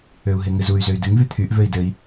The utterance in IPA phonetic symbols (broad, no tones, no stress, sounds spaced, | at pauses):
ø u̯ ɦ e ŋ ɨ z u y̯ z ø y̯ d ɨ ŋ v y t̪ʰ y ʔ v ø i̯ d ɘ i̯